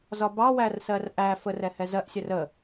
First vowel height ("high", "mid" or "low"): low